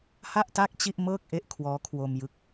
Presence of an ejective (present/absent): absent